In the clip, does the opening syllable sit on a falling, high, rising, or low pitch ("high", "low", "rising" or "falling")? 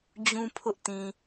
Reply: high